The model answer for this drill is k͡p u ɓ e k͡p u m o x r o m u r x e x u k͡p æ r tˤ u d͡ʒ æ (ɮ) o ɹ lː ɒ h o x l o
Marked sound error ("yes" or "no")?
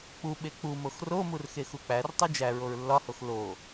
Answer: yes